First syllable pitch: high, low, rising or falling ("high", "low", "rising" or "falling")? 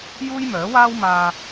high